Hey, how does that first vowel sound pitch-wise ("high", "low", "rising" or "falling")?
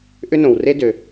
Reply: high